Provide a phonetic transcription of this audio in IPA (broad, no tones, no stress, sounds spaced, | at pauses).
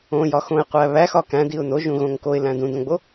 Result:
õ j ɒ x õ ɪ̯ qʷ æ β æ x ɒ k æ̃ d i ʊ̯ n o ʒ ũ ɣ õ ŋ k o ɪ̯ l æ̃ d ũ d õ ɡ͡b o